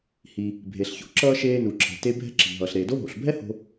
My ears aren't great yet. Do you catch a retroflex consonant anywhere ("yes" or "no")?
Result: no